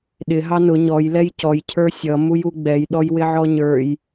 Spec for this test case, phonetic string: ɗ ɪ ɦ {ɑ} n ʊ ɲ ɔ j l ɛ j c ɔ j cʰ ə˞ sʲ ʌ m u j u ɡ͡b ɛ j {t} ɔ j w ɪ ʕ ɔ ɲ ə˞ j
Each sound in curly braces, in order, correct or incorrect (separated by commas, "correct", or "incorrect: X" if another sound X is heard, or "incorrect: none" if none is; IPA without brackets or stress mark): correct, incorrect: ɗ